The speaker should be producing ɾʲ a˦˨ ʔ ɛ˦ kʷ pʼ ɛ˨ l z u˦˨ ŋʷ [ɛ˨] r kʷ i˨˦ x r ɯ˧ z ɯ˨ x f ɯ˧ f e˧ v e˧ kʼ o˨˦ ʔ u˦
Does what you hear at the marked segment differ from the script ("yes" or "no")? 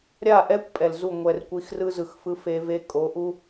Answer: no